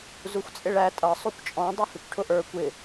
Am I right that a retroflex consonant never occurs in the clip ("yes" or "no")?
no